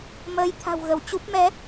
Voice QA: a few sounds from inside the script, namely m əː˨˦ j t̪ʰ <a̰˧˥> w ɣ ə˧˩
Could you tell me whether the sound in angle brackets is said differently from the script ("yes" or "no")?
yes